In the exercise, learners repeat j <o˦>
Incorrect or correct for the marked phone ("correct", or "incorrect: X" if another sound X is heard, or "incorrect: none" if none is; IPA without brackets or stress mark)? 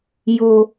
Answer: incorrect: o˨